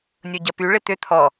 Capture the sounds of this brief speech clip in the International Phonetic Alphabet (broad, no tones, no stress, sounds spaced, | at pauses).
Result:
nʲ o ɟ ɐ p y ɭ ɪ t̪ ʏ t̪ʰ ɔ